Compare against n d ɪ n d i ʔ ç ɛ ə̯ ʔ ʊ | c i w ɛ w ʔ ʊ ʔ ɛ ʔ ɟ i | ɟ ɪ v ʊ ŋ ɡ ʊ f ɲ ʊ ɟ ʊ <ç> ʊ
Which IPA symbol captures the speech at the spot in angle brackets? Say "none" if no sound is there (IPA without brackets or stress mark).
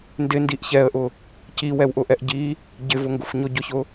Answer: ç